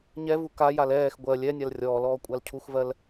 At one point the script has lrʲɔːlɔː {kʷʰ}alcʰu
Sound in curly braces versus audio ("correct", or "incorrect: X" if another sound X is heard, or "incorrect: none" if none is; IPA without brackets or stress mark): incorrect: kʷʼ